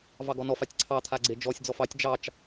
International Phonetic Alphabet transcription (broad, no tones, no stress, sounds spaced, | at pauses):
v ɑ ɡ ɔ n ɔ f a tʲ ǀʰ ɑ t̪ʰ a ɡ͡ǀ e d͡ʒ ɔ sʲ d͡z ɔ f ɑ tʲ d͡ʒ ɑ t͡ʃ